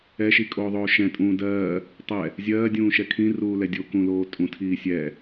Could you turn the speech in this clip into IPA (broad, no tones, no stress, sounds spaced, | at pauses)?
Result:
ɛ ʃ i kʼ oː ðˤ oː ʃ ɛ̃ tʼ ũː d ɜː | tˤ ɛ | zʲ ɜː dʲ ũː ʃ ɛ kʰ ĩ r uː l ɛ dʲ o k ũ l oː tʼ ũ tʰ iː sʲ ɛ